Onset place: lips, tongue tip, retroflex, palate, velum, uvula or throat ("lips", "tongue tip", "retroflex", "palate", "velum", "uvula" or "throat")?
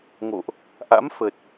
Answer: velum